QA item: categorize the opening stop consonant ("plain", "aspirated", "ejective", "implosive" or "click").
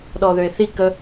implosive